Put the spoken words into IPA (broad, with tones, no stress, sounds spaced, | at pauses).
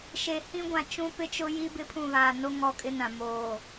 ʃ e˨ h ĩ˦ ɡʷ ã˨ t͡ʃ ũ˦ p ɪ˦ t͡ʃ ʊ˦ j i˦ b ɪ˦ pʰ ũ˦˨ β aː˨ n o˦ ŋ ɔ˦ kʼ ɪ˦ n ã˨ m oː˨